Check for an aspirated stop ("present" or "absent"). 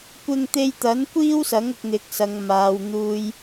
absent